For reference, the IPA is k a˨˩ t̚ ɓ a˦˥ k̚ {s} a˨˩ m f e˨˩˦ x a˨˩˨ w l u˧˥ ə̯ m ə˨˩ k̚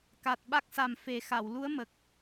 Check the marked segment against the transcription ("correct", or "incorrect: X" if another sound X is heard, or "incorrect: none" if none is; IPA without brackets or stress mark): correct